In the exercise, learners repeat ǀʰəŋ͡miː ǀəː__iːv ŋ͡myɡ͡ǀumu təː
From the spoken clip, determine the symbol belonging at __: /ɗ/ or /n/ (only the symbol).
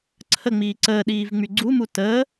ɗ